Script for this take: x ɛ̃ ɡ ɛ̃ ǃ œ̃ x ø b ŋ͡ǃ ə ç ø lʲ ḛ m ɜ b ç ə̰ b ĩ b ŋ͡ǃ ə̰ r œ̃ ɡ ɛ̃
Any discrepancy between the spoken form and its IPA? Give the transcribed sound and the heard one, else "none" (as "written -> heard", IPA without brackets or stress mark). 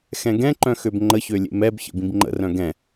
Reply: ɜ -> ɛ